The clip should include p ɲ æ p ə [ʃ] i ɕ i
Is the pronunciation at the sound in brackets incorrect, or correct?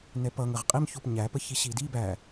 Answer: incorrect